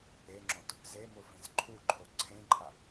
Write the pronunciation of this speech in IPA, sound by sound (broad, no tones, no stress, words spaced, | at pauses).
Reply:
eŋ͡ǁɔ̃t | ze mʊfẽzǃʰuǃʰo ǀʰẽǃʼa